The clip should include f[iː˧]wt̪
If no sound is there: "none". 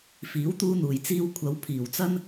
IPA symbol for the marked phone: iː˨˥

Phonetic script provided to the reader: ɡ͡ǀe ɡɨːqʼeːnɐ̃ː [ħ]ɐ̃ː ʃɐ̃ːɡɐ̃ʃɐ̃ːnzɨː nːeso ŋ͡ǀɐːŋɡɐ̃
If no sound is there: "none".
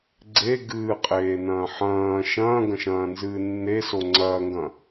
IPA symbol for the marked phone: ħ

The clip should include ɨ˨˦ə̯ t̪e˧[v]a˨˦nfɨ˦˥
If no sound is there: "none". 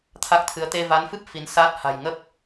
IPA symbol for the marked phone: v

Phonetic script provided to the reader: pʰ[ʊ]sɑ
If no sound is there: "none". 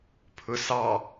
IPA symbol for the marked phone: ʊ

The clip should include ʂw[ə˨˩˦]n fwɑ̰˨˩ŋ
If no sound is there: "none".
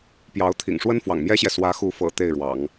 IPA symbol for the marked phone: ə˥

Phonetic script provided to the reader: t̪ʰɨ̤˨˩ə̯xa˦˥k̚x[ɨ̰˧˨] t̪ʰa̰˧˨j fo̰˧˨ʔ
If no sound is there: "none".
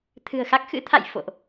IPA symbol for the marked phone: ɨ̰˧˥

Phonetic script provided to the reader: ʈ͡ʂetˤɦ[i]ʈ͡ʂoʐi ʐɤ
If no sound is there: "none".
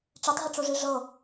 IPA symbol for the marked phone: i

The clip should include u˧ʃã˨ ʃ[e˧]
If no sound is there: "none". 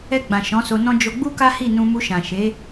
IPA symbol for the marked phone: e˨˦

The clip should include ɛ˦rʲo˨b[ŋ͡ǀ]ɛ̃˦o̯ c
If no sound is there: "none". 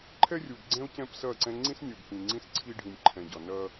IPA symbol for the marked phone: ɡ͡ǀ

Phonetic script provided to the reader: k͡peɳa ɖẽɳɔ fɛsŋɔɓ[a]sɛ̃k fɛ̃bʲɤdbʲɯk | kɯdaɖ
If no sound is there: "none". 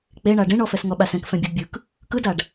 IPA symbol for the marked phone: a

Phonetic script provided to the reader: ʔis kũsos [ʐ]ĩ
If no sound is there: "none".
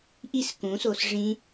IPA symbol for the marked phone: ʐ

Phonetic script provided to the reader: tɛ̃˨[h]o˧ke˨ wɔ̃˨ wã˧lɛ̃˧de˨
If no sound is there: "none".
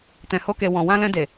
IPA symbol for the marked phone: h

